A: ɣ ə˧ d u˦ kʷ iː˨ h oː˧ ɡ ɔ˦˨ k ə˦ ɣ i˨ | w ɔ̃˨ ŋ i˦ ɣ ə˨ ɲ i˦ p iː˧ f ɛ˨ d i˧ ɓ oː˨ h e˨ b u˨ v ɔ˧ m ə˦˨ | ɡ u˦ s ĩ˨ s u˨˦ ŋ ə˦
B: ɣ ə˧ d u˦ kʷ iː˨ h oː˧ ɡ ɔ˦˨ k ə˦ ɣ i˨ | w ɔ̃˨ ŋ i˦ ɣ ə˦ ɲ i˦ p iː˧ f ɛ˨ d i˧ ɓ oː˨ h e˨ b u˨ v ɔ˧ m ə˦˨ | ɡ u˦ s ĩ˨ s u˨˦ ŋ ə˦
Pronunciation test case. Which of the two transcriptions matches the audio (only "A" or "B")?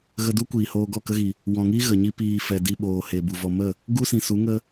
A